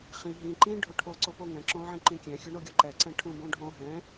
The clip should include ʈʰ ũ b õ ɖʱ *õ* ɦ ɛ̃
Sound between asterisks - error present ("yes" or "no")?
no